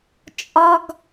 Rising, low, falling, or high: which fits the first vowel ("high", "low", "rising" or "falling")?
high